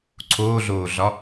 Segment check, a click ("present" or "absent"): present